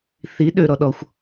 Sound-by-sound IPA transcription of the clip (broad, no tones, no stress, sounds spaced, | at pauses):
θ i ɗ ø ɾ ɔ ɗ ɔ xʷ